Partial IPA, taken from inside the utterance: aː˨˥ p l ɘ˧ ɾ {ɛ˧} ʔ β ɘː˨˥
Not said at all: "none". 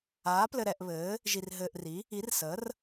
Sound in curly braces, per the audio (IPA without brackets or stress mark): ɛ˧